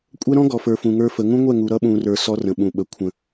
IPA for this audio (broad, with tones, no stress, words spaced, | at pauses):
kʷʼɛ˦ɾɔ̃˦ɡɔ˨fə˞˨ fũ˨ŋə˞˦fə˨˦ ŋũ˦ŋʷɛ˦˨ŋu˨ ɾʌ˦ɓũ˨rə˞˨ sɔ˦rə̃˨ ɓũ˨ɓə˨ kʷʰə̃˨